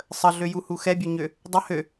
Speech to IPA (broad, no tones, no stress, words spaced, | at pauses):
sˤəɮøjuhu xɛbʲøɲø | dˤə hø